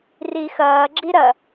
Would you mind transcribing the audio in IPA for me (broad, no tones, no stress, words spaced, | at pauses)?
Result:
rixɐːɡ͡ǁi ɾɐ